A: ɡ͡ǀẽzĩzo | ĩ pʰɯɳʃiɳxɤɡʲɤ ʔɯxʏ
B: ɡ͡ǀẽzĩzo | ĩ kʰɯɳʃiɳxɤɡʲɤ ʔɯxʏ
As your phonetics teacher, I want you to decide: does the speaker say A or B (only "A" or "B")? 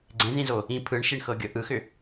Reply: A